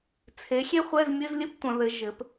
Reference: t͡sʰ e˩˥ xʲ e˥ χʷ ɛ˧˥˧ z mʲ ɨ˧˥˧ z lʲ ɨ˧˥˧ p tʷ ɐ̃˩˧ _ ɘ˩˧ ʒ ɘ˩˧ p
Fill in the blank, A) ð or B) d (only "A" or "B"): A